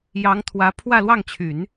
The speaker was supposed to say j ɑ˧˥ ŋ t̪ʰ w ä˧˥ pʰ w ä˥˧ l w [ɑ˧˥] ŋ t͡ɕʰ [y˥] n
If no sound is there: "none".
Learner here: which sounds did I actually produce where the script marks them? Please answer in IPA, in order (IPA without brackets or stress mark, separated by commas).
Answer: ɑ˥˩, y˨˩˦